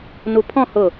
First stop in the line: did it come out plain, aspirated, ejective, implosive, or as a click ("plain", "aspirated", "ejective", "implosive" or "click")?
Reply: aspirated